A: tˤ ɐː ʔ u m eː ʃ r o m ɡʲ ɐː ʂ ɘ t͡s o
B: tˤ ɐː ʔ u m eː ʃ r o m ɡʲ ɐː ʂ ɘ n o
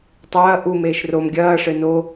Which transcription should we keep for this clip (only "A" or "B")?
B